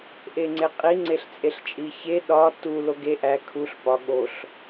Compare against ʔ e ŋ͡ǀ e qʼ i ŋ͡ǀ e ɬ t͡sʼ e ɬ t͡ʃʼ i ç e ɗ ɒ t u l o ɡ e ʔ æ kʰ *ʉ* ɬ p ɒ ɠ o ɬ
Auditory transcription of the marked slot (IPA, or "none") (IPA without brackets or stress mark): u